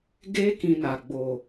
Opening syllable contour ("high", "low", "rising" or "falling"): high